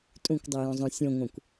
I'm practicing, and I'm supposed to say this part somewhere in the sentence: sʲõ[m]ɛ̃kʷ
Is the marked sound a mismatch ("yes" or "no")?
yes